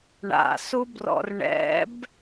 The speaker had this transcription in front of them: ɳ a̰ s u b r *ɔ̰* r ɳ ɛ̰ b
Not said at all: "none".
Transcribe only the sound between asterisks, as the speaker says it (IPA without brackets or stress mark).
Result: ɔ̰